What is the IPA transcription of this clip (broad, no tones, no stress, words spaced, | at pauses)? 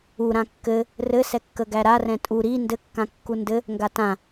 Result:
u ɾãkːɘ | rɘ sɛkːəɡæɾa rɛ̃tʼu ɾi ndɘ kːãkːundɘ | ŋɡatã